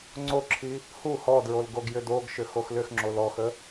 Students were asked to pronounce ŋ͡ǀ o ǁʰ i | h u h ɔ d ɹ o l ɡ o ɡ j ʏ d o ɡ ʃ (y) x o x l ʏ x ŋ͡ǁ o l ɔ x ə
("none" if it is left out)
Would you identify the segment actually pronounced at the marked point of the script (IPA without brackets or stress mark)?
ʏ